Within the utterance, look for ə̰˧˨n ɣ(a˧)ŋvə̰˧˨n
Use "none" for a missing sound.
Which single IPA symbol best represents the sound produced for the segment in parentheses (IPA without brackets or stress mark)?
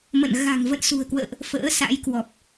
a̤˨˩